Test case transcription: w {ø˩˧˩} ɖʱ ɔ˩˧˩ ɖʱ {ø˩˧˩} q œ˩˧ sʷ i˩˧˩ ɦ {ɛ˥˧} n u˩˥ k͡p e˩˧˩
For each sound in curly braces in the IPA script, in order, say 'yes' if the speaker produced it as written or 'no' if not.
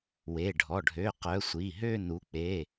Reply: no, yes, no

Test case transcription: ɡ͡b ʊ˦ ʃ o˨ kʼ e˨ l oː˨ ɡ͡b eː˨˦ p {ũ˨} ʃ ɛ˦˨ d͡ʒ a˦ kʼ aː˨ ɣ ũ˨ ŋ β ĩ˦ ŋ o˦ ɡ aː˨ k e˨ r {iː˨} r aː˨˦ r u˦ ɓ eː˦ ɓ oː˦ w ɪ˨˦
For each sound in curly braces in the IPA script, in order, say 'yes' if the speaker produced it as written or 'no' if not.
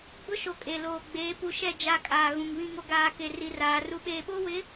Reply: no, no

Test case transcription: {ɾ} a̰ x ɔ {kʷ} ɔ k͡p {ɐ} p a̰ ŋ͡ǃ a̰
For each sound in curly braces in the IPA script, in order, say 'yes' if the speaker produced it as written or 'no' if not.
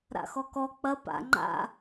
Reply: yes, no, yes

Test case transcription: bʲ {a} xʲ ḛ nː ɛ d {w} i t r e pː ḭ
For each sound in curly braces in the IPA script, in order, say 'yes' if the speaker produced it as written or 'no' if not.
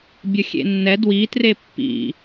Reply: no, yes

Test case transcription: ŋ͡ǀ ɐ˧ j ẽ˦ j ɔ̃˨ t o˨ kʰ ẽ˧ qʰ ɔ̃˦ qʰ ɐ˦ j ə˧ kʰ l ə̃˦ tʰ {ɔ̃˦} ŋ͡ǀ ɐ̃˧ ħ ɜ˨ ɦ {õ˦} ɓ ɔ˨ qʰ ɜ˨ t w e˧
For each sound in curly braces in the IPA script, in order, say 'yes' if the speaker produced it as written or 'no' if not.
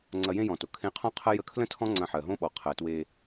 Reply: yes, yes

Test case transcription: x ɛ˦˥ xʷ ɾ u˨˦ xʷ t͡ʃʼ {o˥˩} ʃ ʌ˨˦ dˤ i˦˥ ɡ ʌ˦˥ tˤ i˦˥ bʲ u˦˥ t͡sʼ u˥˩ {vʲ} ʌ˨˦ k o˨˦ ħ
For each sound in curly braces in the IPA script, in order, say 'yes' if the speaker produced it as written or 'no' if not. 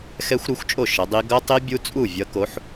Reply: yes, yes

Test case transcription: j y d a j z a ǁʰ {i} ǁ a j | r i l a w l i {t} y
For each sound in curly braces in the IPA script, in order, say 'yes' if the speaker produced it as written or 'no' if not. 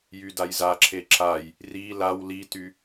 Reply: no, yes

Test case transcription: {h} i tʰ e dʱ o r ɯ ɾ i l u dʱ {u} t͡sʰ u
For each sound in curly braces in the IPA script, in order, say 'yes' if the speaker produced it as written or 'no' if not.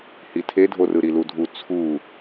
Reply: yes, yes

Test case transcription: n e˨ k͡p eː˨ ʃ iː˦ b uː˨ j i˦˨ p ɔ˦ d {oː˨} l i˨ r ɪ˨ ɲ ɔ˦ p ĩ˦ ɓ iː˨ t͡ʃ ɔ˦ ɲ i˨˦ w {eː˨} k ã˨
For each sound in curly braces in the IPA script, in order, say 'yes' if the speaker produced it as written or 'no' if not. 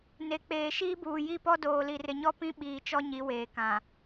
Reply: yes, yes

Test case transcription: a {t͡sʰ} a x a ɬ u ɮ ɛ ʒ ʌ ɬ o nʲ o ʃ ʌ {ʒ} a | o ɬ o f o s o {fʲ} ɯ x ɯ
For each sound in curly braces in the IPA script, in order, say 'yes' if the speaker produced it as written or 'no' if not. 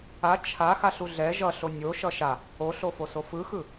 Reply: no, no, no

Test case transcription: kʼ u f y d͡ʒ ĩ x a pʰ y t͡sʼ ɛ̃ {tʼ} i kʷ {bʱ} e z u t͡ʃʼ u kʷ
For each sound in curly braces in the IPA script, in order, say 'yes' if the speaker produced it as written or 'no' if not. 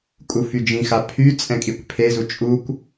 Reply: no, no

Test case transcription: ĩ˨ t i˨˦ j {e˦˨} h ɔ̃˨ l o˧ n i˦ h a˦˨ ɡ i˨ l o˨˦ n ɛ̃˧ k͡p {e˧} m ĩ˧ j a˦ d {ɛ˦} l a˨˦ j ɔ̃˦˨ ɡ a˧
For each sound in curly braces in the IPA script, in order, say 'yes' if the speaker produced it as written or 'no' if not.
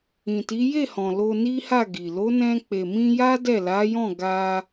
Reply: yes, no, no

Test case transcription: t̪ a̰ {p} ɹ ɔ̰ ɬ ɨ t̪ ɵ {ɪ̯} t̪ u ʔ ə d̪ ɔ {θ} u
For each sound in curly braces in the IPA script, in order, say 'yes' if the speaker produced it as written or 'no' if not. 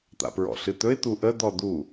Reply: yes, yes, no

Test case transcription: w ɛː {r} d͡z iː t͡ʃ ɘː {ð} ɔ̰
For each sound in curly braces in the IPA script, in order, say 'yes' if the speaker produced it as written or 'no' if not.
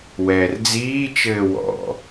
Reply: yes, no

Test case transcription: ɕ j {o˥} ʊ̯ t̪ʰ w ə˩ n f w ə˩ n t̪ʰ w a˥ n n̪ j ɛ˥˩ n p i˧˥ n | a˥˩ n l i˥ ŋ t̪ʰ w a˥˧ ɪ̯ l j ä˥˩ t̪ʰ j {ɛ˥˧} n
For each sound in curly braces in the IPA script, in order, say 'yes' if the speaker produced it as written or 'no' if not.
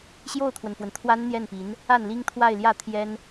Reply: no, no

